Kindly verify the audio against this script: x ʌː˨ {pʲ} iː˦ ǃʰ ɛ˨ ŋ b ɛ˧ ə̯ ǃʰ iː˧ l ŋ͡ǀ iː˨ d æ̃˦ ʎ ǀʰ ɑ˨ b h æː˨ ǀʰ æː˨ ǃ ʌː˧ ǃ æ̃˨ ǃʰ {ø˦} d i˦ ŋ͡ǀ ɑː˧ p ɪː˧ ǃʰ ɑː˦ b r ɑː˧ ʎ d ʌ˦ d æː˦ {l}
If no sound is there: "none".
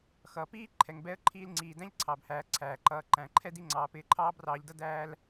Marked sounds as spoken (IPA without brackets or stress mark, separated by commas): p, ɛ˦, l